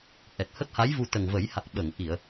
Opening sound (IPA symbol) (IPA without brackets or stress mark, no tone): ʔ